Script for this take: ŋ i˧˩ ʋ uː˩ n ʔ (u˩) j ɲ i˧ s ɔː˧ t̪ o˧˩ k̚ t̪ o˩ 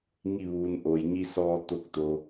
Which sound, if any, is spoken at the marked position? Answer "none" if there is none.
o˩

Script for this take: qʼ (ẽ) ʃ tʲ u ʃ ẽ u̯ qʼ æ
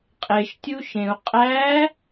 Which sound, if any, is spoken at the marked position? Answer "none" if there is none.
e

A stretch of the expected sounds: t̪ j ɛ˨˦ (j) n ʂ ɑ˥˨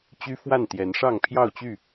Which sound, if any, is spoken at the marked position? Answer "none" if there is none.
none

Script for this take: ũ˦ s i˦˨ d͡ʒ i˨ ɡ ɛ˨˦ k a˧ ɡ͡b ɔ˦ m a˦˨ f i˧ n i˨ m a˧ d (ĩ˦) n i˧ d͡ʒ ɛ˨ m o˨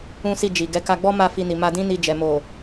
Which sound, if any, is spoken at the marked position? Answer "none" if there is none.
ĩ˦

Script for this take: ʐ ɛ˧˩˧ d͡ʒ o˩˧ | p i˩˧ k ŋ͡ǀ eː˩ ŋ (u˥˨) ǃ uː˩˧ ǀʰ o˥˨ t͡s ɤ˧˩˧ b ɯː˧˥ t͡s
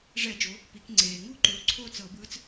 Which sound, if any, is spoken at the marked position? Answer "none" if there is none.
u˥˨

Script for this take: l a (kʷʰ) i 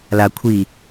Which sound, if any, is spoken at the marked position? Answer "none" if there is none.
kʷʰ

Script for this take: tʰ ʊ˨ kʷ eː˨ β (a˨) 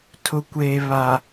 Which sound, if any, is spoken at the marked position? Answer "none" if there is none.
a˨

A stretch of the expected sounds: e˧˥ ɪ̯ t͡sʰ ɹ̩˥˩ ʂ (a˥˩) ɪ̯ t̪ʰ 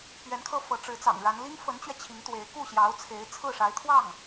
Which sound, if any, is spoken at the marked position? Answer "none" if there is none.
a˧˥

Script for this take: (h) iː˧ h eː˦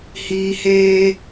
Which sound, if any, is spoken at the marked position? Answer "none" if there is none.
h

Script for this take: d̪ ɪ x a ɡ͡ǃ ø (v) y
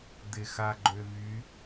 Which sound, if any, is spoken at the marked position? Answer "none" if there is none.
v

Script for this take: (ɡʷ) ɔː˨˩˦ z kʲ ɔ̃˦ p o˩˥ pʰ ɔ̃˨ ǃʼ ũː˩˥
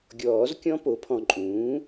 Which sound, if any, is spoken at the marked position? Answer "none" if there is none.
ɡʲ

